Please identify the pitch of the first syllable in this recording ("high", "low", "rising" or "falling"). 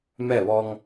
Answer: falling